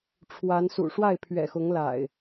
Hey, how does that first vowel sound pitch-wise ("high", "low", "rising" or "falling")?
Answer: rising